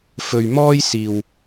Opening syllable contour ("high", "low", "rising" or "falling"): low